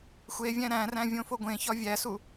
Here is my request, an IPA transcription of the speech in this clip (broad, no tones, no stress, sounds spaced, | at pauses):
xʷ e vʲ æ̃ ɾ æ̃ r æ̃ vʲ õ f o ɡʷ ẽ ç ɒ vʲ æ s u